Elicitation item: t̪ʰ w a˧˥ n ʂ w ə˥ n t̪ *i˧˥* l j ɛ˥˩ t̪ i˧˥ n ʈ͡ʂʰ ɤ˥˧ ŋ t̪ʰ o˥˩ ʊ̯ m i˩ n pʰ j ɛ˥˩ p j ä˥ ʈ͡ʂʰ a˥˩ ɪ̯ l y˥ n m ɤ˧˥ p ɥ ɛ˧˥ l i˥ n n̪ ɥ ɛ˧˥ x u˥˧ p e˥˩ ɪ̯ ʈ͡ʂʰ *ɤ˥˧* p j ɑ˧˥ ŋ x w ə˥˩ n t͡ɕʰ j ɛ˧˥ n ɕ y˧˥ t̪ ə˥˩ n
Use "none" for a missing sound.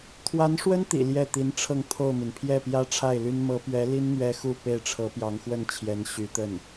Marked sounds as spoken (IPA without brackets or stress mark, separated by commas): ḭ˨˩, ɤ˧˥